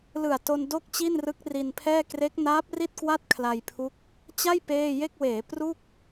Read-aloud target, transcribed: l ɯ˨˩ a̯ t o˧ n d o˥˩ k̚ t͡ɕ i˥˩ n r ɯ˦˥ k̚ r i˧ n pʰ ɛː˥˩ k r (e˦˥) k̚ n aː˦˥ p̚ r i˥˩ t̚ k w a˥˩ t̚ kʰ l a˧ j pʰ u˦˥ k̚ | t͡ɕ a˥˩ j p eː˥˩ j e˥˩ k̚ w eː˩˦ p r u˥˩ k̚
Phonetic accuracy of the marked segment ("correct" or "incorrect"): correct